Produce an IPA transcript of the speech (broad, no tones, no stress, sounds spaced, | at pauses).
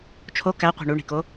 t͡ʃʰ o k æ qʷ i̤ ɳ u ɳ i̤ k o